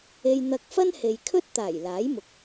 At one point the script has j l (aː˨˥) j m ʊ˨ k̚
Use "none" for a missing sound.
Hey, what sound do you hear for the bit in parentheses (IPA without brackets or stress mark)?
aː˨˥